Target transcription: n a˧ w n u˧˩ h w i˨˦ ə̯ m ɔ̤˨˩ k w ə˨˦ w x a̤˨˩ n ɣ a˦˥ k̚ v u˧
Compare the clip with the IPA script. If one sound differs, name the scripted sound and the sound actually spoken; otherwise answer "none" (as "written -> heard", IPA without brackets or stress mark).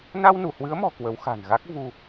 i˨˦ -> ɨ˨˦